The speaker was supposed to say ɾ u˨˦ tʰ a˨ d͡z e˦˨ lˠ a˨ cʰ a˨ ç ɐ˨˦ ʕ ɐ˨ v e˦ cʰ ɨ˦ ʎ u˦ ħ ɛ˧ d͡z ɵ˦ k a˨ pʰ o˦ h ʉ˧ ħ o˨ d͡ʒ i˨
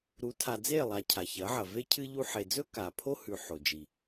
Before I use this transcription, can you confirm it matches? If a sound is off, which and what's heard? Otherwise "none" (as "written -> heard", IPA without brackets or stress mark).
ɛ˧ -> e˧